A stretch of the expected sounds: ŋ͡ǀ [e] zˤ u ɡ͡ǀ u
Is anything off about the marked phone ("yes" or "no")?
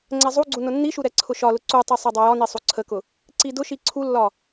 yes